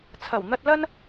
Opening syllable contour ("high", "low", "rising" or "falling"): low